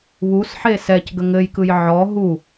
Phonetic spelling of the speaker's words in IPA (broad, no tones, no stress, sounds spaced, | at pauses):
β u s ħ e s ɛ c ɡ ə ŋ ɘ j k ɯ j ʕ ɔ ɦ u